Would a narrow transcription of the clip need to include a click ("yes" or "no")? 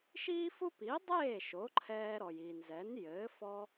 yes